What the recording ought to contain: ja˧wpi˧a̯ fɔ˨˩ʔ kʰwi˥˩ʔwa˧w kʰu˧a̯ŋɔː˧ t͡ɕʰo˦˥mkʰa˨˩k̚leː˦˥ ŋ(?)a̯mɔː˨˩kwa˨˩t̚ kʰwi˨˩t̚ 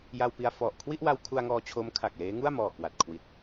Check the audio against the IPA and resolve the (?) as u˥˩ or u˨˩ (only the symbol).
u˥˩